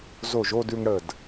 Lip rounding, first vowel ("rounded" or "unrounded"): rounded